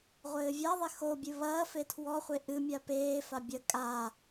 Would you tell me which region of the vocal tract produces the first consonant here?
uvula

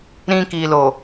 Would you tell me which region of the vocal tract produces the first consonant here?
tongue tip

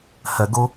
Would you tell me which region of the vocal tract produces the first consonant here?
throat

